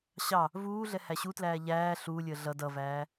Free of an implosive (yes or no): yes